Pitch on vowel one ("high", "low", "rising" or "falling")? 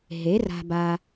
rising